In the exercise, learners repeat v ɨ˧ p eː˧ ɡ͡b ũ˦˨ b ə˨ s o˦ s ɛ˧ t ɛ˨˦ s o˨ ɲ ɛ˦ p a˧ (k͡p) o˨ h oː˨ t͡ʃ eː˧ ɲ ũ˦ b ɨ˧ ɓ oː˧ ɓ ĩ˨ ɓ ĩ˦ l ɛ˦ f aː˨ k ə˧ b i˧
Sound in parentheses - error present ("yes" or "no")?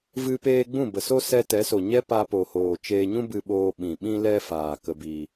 yes